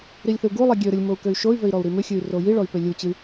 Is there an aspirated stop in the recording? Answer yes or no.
no